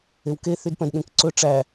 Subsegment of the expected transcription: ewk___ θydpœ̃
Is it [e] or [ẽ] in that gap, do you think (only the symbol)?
e